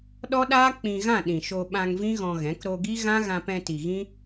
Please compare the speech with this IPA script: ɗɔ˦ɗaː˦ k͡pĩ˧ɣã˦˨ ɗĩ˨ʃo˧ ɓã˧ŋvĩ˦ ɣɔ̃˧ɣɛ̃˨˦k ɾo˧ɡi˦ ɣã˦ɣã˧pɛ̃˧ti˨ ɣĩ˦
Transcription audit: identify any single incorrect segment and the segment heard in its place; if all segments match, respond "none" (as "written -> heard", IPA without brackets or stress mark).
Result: none